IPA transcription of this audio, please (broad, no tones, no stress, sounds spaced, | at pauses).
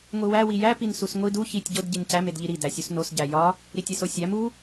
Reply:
ŋʷ i w æ w i j æ p i n s u s ŋʷ i d u ç i tʲ ɟ o d ɟ i n c æ m e d ʎ i ɾ i d æ sʲ u s n o s ɟ æ j ɒ | ɾ i tʲ e s o sʲ æ m u